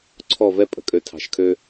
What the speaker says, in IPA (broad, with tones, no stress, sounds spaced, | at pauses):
ǀʰ ɔ˥˧ v ɛ˥ pʼ ə̤˩˧ kʼ ø˧ tʰ ɑ̤˧ ʃ kʰ ø˥